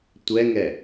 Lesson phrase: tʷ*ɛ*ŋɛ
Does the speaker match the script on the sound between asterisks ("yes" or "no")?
yes